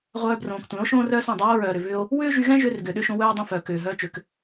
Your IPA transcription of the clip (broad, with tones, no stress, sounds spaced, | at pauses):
ʁʷ œː˧ b r õː˨ k tʷ ɛ̃˨˦ o̯ ʃ õː˦ r œː˦ s õ˦˨ dˤ ʏ˦ w o˦ ɹ œː˨ ɾ ʏ˨ v ʏ˧ o̯ | w ʏː˦ ʒ y˧ ɣ ɛ̃˦ ʒ ʏː˧ r ɡ ʏː˨ ɗ ʏ˧ ʃ õ˧ w œː˦ dˤ ĩ˧ f œː˨ k ʏː˨ ɦ œː˧ t͡ʃ ʏ˨ k